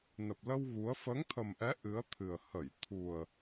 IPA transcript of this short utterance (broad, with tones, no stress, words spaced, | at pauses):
nə˨˩p̚lə˧w ɣu˨˦ə̯ fəː˨˦ŋt̪ʰə˨˩mʔɛ˨˦ ʔɨ˨˦ə̯t̪ʰɨ˨˩ə̯ hə˧˩jt̪ʰu˨˩ə̯